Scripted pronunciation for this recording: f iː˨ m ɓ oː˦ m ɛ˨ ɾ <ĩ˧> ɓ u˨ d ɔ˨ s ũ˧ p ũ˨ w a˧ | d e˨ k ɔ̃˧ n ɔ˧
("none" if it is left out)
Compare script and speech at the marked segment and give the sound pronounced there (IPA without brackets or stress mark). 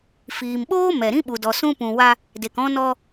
ĩ˦